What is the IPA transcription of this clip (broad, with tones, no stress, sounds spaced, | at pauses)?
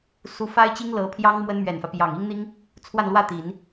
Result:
s u˧˥ f a˥ ɪ̯ t͡ɕ i˥ ŋ l ɤ˧˥ pʰ j ɑ˥ ŋ m w ə˥ n m ɥ ɛ˨˩ n f ä˦ p j ɑ˨˩ ŋ i˥ ŋ n̪ i˥ ŋ | t͡sʰ w a˥˧ n l w ä˥˩ t̪ i˨˩˦ n